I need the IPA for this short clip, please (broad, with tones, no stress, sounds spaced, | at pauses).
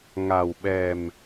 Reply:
ŋ a˨˩ w ɓ ɛ˨˩ m